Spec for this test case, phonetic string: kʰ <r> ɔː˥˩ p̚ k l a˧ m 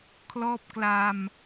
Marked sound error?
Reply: yes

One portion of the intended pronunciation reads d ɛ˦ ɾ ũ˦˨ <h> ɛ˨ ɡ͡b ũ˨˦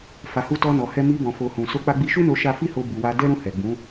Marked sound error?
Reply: no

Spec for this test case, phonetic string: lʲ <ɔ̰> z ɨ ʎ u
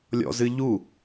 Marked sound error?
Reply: no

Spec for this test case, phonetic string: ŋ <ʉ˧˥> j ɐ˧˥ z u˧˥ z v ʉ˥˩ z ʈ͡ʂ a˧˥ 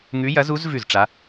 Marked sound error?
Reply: no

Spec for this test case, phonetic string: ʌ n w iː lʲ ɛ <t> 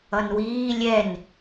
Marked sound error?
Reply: yes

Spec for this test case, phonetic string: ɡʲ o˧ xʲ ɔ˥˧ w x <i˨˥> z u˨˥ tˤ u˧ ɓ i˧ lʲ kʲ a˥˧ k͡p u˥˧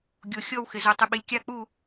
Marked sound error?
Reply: yes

